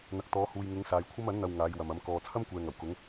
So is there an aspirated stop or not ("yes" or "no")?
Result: yes